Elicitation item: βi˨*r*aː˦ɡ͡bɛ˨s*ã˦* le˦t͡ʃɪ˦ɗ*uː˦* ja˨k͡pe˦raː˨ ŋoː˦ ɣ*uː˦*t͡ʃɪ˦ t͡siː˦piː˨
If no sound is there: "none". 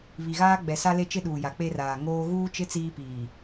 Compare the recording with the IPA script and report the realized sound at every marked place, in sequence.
ɣ, a˦, uː˨, uː˦

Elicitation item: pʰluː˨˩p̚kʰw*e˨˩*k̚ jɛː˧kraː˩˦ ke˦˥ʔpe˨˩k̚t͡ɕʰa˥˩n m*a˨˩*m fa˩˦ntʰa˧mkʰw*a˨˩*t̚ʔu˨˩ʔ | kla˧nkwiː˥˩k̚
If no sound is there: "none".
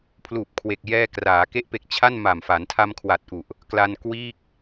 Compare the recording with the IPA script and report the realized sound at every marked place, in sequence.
e˨˩, a˨˩, a˨˩

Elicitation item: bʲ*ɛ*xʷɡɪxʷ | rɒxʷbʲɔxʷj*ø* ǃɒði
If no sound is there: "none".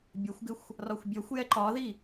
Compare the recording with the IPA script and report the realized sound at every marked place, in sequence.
ɜ, ɛ

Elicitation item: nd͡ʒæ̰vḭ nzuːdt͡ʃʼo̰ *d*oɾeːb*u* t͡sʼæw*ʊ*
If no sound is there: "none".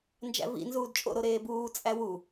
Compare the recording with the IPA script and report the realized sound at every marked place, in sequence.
ɾ, uː, u

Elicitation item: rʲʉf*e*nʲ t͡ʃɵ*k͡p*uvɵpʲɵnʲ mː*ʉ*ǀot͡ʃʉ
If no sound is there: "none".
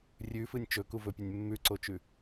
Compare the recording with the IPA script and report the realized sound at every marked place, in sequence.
ɨ, k, ʉ

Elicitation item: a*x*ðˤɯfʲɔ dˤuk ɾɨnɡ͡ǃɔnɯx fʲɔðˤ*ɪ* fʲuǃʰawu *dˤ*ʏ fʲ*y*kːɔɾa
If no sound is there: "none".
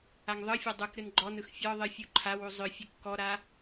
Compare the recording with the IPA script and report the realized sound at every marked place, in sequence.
ŋ, ɨ, zˤ, ɨ

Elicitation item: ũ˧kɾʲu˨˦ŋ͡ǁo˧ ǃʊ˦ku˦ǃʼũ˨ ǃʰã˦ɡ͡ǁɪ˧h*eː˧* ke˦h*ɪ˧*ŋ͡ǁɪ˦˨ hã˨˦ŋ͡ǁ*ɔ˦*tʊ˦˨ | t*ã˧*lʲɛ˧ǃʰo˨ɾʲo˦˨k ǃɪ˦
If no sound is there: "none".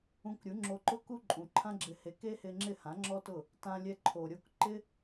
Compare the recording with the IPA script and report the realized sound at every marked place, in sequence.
e˧, ɪ˧, ɔ˦, ã˧

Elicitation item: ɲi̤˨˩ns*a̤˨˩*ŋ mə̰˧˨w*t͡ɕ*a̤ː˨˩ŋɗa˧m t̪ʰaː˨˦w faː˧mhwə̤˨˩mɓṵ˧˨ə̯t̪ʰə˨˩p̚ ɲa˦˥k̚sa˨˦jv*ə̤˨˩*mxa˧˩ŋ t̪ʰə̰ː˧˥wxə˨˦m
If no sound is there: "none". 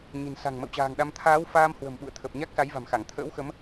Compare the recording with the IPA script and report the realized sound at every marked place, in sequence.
a̤˨˩, t͡ɕ, a̤˨˩

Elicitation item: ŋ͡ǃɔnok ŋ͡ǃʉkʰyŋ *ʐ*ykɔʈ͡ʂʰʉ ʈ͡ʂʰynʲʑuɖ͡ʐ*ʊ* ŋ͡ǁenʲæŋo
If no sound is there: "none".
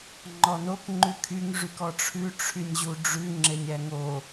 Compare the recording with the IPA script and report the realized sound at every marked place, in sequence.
ʐ, ʉ

